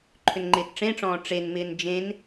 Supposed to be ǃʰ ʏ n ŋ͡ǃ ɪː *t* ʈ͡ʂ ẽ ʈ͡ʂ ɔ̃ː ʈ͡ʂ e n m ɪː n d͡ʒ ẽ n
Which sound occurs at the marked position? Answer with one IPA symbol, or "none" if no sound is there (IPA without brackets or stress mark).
t